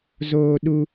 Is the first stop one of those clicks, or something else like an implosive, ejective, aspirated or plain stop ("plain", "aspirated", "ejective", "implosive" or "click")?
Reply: implosive